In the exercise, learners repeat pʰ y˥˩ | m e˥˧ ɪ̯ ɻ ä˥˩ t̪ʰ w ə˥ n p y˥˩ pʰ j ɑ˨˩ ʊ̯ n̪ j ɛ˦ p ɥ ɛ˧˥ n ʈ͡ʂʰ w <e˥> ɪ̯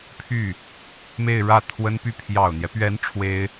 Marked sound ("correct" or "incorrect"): correct